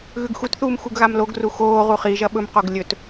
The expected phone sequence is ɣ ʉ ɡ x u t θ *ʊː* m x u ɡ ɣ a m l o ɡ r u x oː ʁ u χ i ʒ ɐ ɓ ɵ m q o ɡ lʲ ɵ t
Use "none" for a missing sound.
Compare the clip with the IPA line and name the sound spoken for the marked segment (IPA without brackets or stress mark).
uː